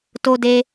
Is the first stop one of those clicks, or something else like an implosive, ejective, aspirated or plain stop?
plain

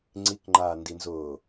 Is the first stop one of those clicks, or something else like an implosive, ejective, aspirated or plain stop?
click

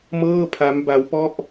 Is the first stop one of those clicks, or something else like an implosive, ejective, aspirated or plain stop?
aspirated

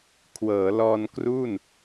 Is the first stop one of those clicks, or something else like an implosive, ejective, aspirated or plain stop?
aspirated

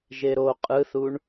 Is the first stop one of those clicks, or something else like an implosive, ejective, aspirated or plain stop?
ejective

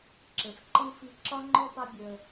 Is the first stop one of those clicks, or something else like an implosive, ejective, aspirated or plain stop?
click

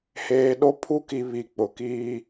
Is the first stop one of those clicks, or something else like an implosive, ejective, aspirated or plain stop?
implosive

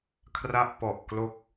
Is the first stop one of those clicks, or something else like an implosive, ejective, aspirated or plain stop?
aspirated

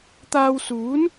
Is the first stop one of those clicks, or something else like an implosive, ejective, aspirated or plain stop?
plain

